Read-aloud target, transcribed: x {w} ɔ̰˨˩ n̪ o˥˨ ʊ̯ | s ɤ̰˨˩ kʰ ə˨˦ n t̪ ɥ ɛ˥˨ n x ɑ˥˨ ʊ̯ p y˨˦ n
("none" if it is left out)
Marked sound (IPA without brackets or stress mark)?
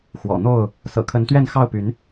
w